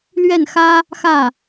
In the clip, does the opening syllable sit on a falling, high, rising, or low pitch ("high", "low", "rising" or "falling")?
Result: falling